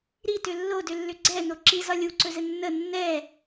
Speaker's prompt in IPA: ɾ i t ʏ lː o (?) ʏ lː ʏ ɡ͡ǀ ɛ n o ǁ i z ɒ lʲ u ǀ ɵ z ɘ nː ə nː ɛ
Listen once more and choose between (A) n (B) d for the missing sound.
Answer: B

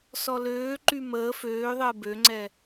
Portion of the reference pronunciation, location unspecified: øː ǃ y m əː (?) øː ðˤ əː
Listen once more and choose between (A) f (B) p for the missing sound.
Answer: A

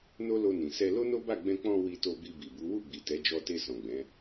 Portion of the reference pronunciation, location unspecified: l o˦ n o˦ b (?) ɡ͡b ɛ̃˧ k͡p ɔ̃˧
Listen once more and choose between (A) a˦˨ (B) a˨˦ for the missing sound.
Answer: A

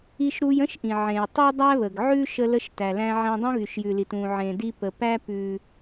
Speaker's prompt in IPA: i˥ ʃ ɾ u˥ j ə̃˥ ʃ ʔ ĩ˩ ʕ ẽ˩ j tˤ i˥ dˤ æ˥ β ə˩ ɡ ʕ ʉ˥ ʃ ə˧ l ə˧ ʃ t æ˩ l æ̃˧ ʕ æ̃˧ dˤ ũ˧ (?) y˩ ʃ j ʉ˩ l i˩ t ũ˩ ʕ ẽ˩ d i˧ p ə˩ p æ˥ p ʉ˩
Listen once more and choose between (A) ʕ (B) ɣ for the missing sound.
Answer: B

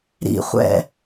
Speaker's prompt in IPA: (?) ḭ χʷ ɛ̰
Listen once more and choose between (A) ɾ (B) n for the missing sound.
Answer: A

